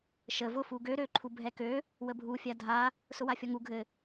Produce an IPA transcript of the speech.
ʃ ə v ʊ f u ɡ ø ɾ ø ǃʰ u bʱ ɛ k ø | w ə bʱ u fʲ a dʱ a | s ʊ w a fʲ ɔ ŋ u ɡʱ ɘ

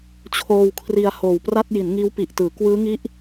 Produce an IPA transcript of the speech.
t͡ɕʰ oː˧ w kʰ r i˧ a̯ h oː˨˩ w p r a˥˩ t̚ j i˩˦ n ŋ iː˦˥ w p i˨˩ ʔ t ɯː˩˦ k w ɯː˦˥ ŋ i˦˥ ʔ

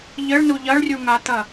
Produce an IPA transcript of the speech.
ʎ ɘ ɭ n u ʎ ɐ ɭ rʲ u ŋ a t̪ ɐ

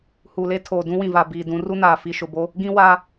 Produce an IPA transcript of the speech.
h u˨ l e˦ tʰ oː˨ d ũ˦ w ĩ˨ v a˨ b iː˨ d ũ˨˦ r u˦ n aː˨ f i˨ ʃ ʊ˨ b o˦ | ɡ ĩ˦ w a˦

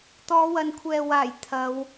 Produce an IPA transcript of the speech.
t̪ ɔː˨˧ w ɐ˨ n kʷʰ ɛː˨ w aː˨˩ j t̪ʰ ɐ˨˧ w

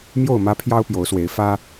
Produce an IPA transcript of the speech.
m j o˥˨ ʊ̯ m ä˦ pʰ j ɑ˦ ʊ̯ p j o˨˦ ʊ̯ s w e˨˦ ɪ̯ f ä˦

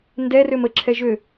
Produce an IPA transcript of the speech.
n d ɛ r ø m ə ǁʰ ɛ ʒ ø

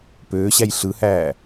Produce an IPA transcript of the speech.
p øː ɕ æ j ɬ ɯ h æː

